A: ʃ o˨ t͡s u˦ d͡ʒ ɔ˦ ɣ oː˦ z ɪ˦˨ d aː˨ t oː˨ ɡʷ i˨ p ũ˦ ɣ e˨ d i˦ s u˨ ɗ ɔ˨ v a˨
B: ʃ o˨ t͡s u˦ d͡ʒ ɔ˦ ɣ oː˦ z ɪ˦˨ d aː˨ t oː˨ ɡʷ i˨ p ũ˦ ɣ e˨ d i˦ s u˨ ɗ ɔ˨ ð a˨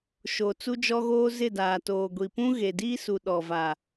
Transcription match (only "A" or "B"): A